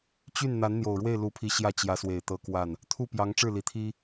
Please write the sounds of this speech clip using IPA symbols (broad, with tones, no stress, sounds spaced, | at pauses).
t͡ɕ y˥˩ n n̪ a˧˥ n n̪ j o˨˩ ʊ̯ ɻ w e˥˩ ɪ̯ l u˧˥ pʰ i˧˥ ɕ j ä˥˩ t͡ɕ j ä˧˥ s w e˨˩ ɪ̯ t̪ ɤ˧˥ k w a˥˩ n | t̪ʰ u˥˩ p j ɑ˧˥ ŋ ʈ͡ʂ ɻ̩˥˩ l i˨˩ t̪ʰ i˥